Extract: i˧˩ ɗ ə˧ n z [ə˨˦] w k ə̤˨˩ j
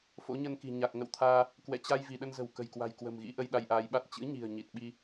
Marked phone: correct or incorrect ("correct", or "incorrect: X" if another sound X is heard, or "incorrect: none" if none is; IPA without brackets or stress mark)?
incorrect: ə̤˨˩